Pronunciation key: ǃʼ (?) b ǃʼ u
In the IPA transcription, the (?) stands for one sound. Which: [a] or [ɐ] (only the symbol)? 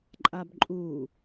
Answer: a